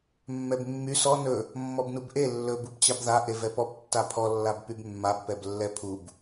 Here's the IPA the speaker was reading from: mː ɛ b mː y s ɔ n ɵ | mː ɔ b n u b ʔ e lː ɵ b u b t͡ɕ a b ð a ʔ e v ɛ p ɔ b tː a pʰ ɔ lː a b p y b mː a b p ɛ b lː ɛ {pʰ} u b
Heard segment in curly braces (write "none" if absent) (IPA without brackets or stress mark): pʰ